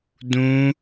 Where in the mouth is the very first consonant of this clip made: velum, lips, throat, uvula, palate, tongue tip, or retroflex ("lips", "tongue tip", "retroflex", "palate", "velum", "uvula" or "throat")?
tongue tip